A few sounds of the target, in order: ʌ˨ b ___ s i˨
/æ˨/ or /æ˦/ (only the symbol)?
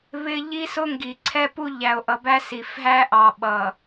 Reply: æ˦